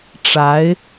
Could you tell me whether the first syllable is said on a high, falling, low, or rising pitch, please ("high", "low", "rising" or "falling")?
rising